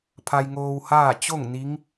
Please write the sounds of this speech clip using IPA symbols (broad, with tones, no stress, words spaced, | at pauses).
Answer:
pʰa˧jŋoː˧whaː˥˨ t͡ɕo˥˨ŋ ni˧˥ŋ